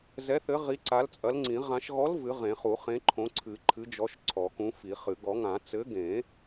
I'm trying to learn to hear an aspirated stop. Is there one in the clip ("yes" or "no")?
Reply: yes